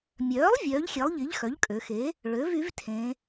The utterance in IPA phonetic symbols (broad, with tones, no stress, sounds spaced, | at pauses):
mʲ œː˩˥ lˠ vʲ œː˩˥ ʎ xʲ e˩˥ lˠ ʎ i˩˥ ʎ x œ˩˥ ʎ kʼ ø˩˧ x e˩˥ | ɭ ø˩˥ v y˩˥ v tʰ ẽ˩˧